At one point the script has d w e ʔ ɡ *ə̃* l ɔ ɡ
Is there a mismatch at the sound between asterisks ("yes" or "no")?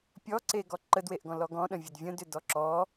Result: yes